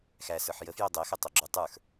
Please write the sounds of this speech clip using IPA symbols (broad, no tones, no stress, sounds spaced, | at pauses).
x æ s ə˞ ħ j ə f j o dˤ ɛ x ə tˤ o ɡ͡ǁ u tˤ ə˞ x